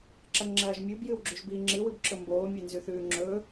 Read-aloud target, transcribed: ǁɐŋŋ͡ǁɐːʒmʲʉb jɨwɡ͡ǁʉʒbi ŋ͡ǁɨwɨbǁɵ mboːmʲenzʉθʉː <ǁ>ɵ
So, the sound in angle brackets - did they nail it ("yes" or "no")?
no